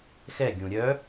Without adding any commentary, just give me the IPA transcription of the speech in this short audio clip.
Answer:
x ɛ ɡʲ ũ ɾʲ œ

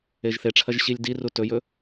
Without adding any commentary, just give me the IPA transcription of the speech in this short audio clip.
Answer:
e ʒ θ e ʈ͡ʂʰ ɐ ʒ ɕ i lʲ d i r u t ɵ j ɵ

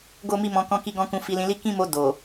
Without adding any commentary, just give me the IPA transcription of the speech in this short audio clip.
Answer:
ɡ o˦ m i˦ m ɔ̃˧ k ɔ̃˧ k i˧ ɡ ɔ̃˧ k ũ˧ f i˧ l ĩ˧ l i˦ k ĩ˦ m o˧ d o˨

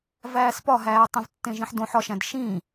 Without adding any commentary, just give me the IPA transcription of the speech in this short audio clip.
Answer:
v æː s p ɒ ɦ æː tˤ ĩ v tː ẽ ʒ ĩ ħ d õ ħ ɒ ʃ æ̃ d ʃ ĩ

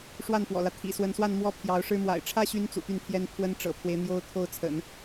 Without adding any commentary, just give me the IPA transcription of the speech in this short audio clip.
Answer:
ʂ w a˥˩ n f w ɔ̰˨˩ l ä˦ t̪ʰ ḭ˨˩ s w ə˧˥ n s w a˥˧ n m w ɔ˥˩ pʰ j ɑ˧˥ ʊ̯ ʂ ɻ̩˥ m w a̰˨˩ ɪ̯ ʈ͡ʂʰ ä˥ ɕ y˧˥ n t͡s ṵ˨˩ t̪ y˥˩ n t̪ʰ j ɛ˥ n pʰ w ə˥ n ʈ͡ʂ ɤ̰˨˩ pʰ w e˦ ɪ̯ n̪ j o˥ ʊ̯ t̪ʰ o˥˩ ʊ̯ t͡sʰ ə̰˨˩˦ n

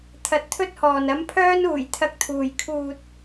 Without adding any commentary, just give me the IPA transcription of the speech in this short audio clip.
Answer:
t̪ʰ ɐ˧ t̚ t̪ʰ ɵ˥ t̚ h ɔː˨ n ɐ˨˧ m pʰ œː˧ n uː˨˩ j t̪ʰ ɐ˧ k̚ t̪ʰ uː˨ j kʰ uː˨ t̚

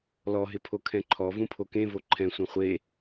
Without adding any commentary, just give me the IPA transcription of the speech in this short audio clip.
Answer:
l ɔ ɦ ɪ pʰ o kʰ ɛ̃ ǃʰ ɔ v ũ pʰ o k ẽ v o ǃʰ ɛ̃ sʷ ɛ̃ χʷ e

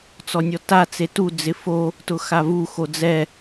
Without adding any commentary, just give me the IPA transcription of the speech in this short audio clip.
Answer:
t͡s ɔ nʲ ɔ t a t͡s e t u d͡z ɪ f o | t ʊ x a v u x o d͡z ɛ

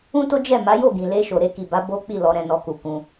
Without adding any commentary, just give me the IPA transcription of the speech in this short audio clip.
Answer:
ũ˦ t o˦ d͡ʒ ɛ˦˨ m a˨˦ j o˦˨ ɡ ĩ˨ l e˧ ʃ o˨ ɾ e˧ k i˨ b a˨˦ b o˦ k͡p i˦˨ l ɔ˨˦ ɾ ɛ̃˧ n ɔ˧ k u˨ k ũ˧

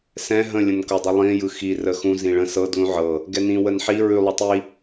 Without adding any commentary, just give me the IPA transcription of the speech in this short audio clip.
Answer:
s ɛ̃ ɦ ə̃ lʲ ə̃ n k ɤ dˤ u lˠ ĩ j ɯ x i r ə x ũ z ĩ ɭ ə̃ s ɤ d l ũ ʕ ɤ | ɡ ɛ n ĩ w ə n ħ i ɹ ʉ lˠ ʉ tˤ i

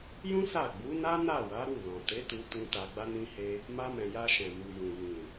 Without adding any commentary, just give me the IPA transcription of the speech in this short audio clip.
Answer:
j ũ˦ s a˦˨ ɡ͡b u˨˦ n a˦ n a˦˨ w a˨˦ ɾ u˦˨ l ɔ̃˨ t e˨˦ t u˧ t ũ˧ t a˧ ɡ͡b a˦ n ĩ˦ h e˦ | m a˧ m ɛ̃˨ j a˧ ʃ ɛ̃˨ m u˨ j ũ˨ j ĩ˨

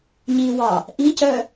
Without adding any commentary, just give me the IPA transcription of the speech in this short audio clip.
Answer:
ɲ i w ɑ | ʔ i c œ

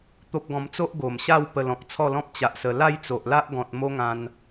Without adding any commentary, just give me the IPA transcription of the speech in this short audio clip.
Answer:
t̪ o˦ p̚ ɡ ɔ̃˧ m t͡s o˦ ʔ ɡ o˨˩ m ɕ a˥˧ w p ə˧ l ɔ̃˨ k̚ t͡sʰ ɔ˥˧ l ɔ̃˦ p̚ t͡ɕ a˨ ʔ s ə˨˩ l a˥˧ j t͡s o˨ ʔ l a˦ ʔ ɡ ɔ̃˨ t̚ m o˦ ŋ ã˧ n

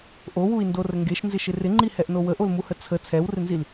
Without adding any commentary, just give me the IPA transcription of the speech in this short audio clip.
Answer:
ʔ o w u i̯ n d o r ə ŋ ɡ e ʃ n z ɪ ʃ ɪ r ɪ ŋ͡ǃ i h ɛ ʔ n o w ə ʔ o l m u h ə t͡sʰ ə t͡sʰ ɛ w r ɪ n z i l

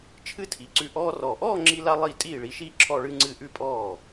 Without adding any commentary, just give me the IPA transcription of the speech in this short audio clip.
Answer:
t͡ʃʰ ɨ˥ tʰ i˩˥ ǀ ʉ˧ ʔ ɔː˧ r ɔ˨˩ ʔ ɔː˥˧ ŋ͡ǁ i˥ l a˥ lˠ i˥˩ tʼ iː˥˩ ɭ i˩˥ ʃ iː˥ ǁʰ ɔ˥˧ ɭ ɨ˥ ŋ͡ǀ ɨ˥˩ ʔ ʉ˥˩ pʼ ɔː˥˩

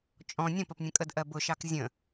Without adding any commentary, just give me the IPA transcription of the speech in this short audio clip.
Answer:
t͡ʃʼ ɔ̃ nʲ ə̃ p ə p nʲ ə̃ kʼ ə d ʔ ɜ b ʊ ʃ ɑ k zʲ ə̃

